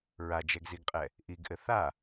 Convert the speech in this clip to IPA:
ɹad͡ʒɛɡziɡqʼɛ | ʔiɡʔɘ θa

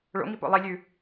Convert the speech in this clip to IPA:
ɭo̰ŋipo̰ lˠilʲʉ

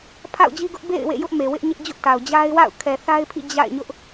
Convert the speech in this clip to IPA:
pʰa̰˦˨ʊ̯d͡ʑi˦ɡʊ˦ʔ bḛ˦˨ɪ̯ wḛ˦˨jʊ˦ʔme˨wɪ˦ʔ ɲɪ˦ʔd͡ʑʊ˦ʔta˨ʊ̯ d͡ʑa˦ɪ̯wa̰˦˨ʊ̯ kʰɛ˨θa˦ɪ̯pʰḭ˦˨ d͡ʑa̰˦˨ɪ̯ ɲʊ˦ʔ

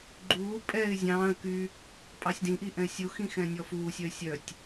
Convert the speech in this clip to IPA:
ɡ͡ǃuː pʼɛɪ̯ zʲɑ̃ːə̯ ky | pʼɑsʲdĩʔi ʔɛ̃ɪ̯sʲuxĩ xɛ̃nʲɔfuːsʲœɪ̯ sʲœtʲ

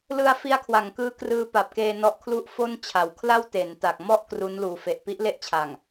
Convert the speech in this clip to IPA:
lɯ˧a̯ fi˦˥a̯kʰwa˩˦ŋkɯː˦˥ krɯː˧pa˨˩p̚keː˧ nɔ˦˥ʔ kʰlu˦˥ʔ fo˥˩nt͡ɕʰa˩˦w kʰla˥˩w te˩˦nta˨˩k̚ mɔ˥˩ʔ kru˦˥nluː˨˩fe˨˩ʔ pi˦˥ʔle˥˩ʔt͡ɕʰa˨˩ŋ

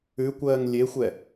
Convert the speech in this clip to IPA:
ʉkʷɜːŋ lʲexʷɛ

